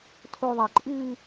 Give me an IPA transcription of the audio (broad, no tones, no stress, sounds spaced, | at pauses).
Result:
tʰ o ðˤ a ǃʼ ʉː